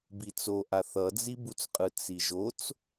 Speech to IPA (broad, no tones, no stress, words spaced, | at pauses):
bit͡soʔa θʌd͡zibut͡sqʼɯ t͡siʒot͡s